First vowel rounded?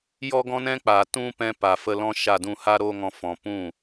yes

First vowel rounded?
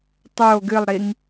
yes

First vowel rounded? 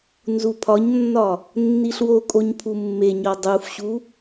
yes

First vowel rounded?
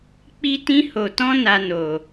no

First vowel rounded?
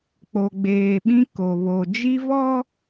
yes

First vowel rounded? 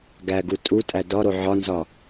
no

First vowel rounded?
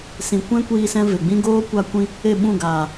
no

